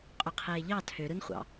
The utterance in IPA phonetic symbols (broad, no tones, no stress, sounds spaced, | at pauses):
qʼ o qʰ eː ʎ ɑ tʰ ø ɾ ɯ n χʷ ɑ̰